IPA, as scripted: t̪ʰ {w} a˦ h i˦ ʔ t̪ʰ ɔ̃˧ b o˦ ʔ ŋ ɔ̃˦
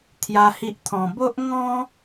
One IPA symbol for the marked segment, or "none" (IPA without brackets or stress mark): j